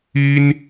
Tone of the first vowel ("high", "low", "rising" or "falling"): high